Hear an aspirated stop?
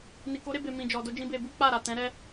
no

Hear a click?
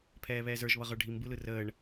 no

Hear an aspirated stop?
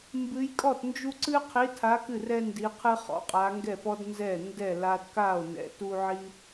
yes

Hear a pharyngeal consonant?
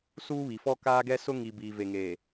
no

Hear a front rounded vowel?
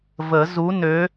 yes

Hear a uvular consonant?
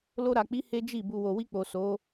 no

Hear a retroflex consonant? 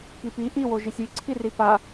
no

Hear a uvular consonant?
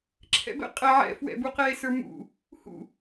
yes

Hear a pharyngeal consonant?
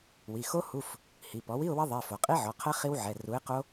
yes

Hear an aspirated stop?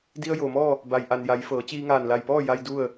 no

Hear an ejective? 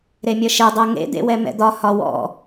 no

